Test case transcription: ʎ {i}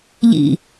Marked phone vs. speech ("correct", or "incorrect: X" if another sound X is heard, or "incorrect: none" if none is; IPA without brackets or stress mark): incorrect: ḭ